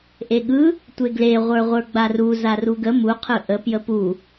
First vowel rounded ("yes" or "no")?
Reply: no